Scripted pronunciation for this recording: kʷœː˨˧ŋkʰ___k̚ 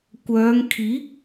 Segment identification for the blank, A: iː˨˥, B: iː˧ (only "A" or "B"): A